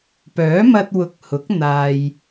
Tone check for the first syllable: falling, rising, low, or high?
rising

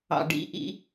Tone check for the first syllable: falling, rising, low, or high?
low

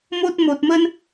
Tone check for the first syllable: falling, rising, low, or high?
high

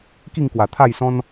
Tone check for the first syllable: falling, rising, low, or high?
falling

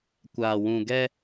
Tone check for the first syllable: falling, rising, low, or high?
low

